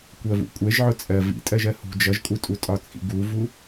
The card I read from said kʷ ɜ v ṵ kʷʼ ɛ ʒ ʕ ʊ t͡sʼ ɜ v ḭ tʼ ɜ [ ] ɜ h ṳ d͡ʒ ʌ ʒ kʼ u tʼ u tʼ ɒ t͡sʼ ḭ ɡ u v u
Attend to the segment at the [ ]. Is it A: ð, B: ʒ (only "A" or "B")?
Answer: B